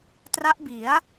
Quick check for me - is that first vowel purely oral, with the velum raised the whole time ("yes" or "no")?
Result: yes